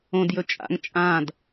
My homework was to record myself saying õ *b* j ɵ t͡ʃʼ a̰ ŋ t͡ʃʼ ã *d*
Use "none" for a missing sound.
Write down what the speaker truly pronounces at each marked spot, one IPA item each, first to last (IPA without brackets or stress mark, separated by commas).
d, d